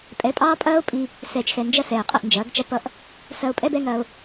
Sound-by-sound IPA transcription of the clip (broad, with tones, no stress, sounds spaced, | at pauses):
pʼ ɛ˨˦ pʼ ɑː˦ pʼ ɐː˦ o̯ pʼ i˧ | s ɛː˨ t͡ʃ x ɛ˨ n d͡ʒ ɐ˦ s ɛː˨ qʼ ə˧ ʔ n d͡ʒ ɐː˨˦ ɡ t͡ʃ ʌ˦ p ʌ˦ ʔ | s ɐ˧ o̯ pʼ ɛ˦ b ɛ˦ ŋ ɐː˧ o̯